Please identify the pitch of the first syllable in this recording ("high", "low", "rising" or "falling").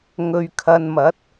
low